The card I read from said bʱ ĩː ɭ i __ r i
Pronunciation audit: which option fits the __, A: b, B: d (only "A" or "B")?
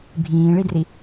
B